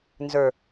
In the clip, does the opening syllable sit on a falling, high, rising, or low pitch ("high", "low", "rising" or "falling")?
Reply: low